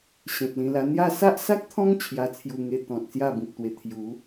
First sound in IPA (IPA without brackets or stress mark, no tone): ɕ